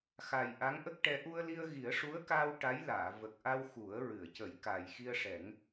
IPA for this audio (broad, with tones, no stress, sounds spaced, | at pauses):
x a˨˩ j ʔ a˧˥ ŋ ʔ ə˦˥ k̚ ʈ ɛ˧˥ ʔ u˧ ə̯ l i˧ ə̯ ɣ i˨˩˦ ə̯ ʂ u˧˥ ə̯ k aː˧ w ʈ a˧˥ j l aː˨˩˨ v ə˨˩ k̚ ʔ a˧ w x u˨˩˦ ə̯ ɹ ɨ˨˩˨ ə̯ c ə˨˩˦ j k a˨˩ j x i˧ ə̯ ʂ ɛ˨˩˦ ŋ